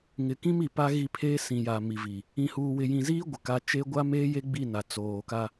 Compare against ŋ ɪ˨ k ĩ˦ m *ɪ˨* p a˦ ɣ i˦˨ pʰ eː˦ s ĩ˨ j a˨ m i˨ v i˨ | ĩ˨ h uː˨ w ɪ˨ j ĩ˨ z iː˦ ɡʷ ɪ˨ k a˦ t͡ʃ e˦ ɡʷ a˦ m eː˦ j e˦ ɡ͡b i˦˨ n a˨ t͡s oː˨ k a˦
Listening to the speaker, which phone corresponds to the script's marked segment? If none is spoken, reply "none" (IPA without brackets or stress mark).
i˨